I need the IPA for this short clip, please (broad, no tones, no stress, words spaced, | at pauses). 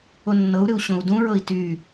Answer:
onːɤu̯ɾɨu̯ ɕõu̯dũɹɤi̯ ty